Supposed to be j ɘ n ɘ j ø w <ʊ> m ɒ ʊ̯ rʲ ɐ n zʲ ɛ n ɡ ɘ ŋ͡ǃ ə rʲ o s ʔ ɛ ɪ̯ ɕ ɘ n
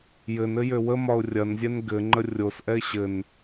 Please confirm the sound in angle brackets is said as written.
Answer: no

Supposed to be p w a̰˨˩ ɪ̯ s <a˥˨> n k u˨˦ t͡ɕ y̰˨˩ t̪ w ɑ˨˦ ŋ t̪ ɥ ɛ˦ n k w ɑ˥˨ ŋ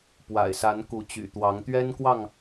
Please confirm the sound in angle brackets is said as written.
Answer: no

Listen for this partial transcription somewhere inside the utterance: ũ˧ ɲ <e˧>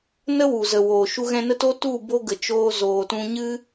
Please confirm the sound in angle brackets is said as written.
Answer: no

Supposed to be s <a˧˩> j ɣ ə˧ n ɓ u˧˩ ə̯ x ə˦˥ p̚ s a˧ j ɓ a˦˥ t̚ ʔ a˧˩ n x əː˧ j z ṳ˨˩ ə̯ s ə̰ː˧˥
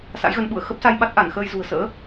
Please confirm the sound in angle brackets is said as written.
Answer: no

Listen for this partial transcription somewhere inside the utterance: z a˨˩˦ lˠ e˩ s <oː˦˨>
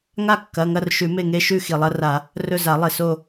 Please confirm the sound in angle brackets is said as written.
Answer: no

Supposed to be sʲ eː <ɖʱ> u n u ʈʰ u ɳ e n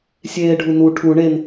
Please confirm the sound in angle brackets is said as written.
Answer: yes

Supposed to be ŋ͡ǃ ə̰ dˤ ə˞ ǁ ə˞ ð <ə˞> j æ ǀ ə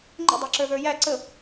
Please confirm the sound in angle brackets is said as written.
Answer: yes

